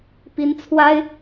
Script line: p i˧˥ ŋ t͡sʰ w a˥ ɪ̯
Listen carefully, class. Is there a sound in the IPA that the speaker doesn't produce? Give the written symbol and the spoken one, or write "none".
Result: ŋ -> n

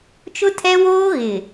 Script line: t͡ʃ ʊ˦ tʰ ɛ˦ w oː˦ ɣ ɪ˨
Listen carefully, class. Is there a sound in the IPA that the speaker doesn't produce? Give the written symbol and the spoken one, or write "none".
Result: none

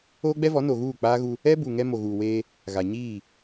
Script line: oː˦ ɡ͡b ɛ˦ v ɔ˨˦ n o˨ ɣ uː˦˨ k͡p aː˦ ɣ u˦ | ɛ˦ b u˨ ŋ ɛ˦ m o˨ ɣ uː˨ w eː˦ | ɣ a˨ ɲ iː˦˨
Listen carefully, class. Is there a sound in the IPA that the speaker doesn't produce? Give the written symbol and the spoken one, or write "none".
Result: none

